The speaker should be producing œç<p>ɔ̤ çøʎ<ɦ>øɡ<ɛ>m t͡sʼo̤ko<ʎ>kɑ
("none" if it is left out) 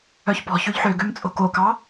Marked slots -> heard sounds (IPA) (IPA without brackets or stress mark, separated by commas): p, ħ, ø, none